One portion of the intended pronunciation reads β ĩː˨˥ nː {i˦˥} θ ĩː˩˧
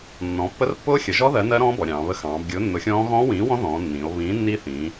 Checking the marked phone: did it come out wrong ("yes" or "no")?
no